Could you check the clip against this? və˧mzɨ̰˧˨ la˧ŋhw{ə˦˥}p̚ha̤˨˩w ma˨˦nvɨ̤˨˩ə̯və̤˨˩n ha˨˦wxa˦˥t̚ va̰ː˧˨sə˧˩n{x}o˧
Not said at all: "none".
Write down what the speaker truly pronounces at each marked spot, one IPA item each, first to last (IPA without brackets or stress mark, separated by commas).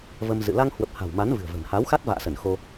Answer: ə˨˩, x